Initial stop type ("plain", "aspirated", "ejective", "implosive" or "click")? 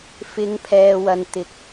aspirated